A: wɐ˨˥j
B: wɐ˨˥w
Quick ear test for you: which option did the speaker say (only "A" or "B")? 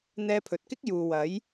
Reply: A